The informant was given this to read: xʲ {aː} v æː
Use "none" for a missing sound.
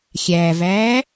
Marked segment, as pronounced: æː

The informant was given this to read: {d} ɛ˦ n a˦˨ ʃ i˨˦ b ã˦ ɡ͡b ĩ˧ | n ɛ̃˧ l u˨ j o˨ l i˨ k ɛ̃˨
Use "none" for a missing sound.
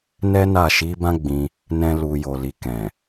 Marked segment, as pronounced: n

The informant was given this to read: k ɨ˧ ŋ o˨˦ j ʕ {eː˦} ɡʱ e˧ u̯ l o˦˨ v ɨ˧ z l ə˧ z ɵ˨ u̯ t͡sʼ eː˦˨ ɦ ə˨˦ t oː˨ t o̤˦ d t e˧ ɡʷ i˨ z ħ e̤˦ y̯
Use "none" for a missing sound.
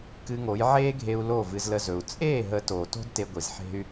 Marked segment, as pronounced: eː˦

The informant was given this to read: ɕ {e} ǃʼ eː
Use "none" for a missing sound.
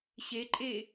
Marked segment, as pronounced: e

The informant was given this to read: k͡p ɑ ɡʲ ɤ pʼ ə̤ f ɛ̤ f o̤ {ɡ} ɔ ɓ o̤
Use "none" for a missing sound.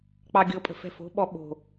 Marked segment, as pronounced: ɓ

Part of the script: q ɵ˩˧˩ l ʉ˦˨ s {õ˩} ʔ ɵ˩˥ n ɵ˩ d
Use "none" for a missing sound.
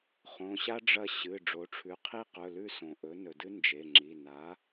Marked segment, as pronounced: õ˩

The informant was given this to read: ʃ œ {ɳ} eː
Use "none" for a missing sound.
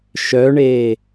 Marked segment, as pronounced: ɳ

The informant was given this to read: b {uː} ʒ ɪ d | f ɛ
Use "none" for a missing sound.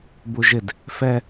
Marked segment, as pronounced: u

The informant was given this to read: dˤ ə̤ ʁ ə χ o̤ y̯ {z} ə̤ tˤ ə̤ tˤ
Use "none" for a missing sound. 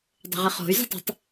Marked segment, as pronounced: z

